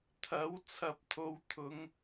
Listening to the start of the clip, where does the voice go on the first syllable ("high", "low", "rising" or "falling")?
rising